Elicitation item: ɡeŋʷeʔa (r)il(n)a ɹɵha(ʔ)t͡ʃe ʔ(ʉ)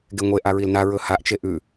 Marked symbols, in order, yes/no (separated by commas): no, yes, yes, yes